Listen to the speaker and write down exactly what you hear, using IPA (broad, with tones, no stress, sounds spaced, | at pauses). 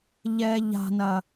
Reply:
ʎ ɛ˨ ʎ a̤˨ n ɐ˨